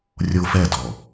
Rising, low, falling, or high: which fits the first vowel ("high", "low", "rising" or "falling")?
high